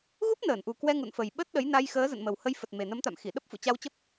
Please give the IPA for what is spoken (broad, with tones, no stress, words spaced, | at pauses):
ɣu˦˥p̚nəː˧˩nʔu˨˩ kwɛ˧ŋṵ˧˨nfə˨˩j ɓə˦˥t̚ɗə˨˦j na˧jxəː˨˦ zə̰˧˨nmə˨˩whə˧jfə˨˩t̚ me˨˩nə˨˦mt̪a̰˧˨m xi˧˩ɗə˦˥p̚ fṵ˧˨t͡ɕa˧wt͡ɕə˦˥p̚